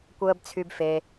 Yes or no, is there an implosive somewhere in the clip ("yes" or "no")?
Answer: no